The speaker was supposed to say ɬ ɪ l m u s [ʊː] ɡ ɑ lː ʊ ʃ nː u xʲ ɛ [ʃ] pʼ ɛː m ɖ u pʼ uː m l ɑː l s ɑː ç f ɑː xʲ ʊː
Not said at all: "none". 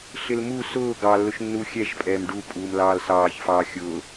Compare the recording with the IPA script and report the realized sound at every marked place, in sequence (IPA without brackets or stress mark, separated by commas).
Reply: ʊː, ʃ